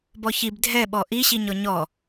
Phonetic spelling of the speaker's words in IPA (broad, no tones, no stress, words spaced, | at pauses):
bɔçib dʱɛɓɔ ʔiɕiɲɔ ɲɔ